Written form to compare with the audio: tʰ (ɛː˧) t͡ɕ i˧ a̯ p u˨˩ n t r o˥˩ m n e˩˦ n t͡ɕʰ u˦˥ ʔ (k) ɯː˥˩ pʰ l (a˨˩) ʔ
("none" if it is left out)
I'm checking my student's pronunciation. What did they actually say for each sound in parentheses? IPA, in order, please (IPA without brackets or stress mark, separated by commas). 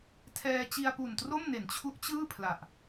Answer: ɛː˧, t͡ɕ, a˨˩